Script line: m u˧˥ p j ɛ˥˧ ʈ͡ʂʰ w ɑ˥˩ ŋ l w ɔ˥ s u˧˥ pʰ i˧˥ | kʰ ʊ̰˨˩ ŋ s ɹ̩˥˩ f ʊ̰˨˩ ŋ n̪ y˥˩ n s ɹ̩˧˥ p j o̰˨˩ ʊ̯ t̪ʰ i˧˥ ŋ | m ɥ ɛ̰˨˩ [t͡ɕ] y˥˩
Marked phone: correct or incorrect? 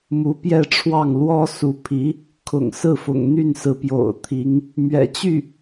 correct